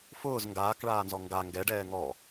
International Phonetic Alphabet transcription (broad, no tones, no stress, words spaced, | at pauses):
fʊːz ŋɡaːkɭaːnzɔ ŋɡa ŋɡɛɖɛː ŋɔ